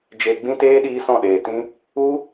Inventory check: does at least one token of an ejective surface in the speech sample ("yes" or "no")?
no